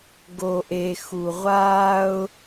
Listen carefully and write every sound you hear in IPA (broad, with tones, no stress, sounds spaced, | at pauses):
ɡ o˨ ʔ e˨ x u˨ ʁʷ aː˦ ʊ̯